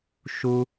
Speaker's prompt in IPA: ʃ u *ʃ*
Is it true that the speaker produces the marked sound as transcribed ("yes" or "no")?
no